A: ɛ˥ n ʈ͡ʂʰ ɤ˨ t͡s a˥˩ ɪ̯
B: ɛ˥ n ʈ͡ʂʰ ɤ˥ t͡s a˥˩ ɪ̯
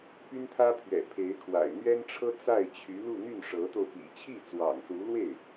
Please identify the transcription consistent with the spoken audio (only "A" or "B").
B